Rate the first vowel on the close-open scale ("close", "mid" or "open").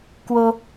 mid